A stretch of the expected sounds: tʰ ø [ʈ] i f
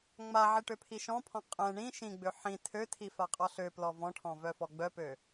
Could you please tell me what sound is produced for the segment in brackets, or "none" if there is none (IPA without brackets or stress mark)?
tʰ